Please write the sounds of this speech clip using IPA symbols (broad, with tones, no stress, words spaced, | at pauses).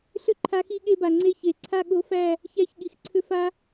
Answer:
ɬʏ˦ ǃʰa˧xi˧ɠe˧ba˨ ŋ͡ǀe˧çe˨ ǀʰa˦˨ɠo˧fæ˦˨ | çæ˧çɠi˨xǀʰʏ˧ fa˦